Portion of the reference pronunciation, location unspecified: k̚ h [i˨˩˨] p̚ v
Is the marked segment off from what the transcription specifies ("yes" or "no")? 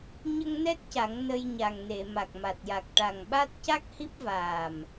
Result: yes